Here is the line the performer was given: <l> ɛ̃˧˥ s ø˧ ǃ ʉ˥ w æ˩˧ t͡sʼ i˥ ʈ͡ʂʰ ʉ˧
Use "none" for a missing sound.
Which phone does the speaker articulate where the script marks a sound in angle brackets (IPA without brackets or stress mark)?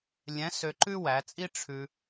lʲ